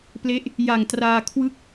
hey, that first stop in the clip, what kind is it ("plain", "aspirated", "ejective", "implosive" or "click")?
plain